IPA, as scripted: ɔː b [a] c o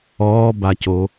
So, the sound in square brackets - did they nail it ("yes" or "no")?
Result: yes